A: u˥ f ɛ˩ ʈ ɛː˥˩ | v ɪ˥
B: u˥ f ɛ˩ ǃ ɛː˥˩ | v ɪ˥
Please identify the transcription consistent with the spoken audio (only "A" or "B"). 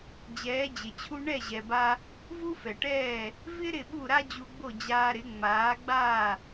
A